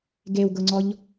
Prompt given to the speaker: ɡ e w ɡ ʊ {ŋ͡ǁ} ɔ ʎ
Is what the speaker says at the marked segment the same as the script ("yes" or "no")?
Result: no